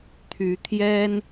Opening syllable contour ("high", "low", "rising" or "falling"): rising